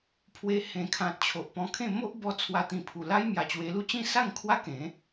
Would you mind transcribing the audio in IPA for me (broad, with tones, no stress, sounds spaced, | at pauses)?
pʰ w e˧ h ẽ˨˩ kʰ ã˨ t̚ t͡ɕʰ o˨ ʔ p ɔ̃˧ kʰ ẽ˥˧ m o˦ ʔ b ɔ˧ t͡sʰ w a˧ t̪ ĩ˨˩ pʰ u˨˩ l a˦ j m j a˨˩ t͡ɕ w e˧ l u˥˧ t͡ɕ ĩ˥˧ s a˥˧ ŋ kʰ w a˦ k ẽ˨˦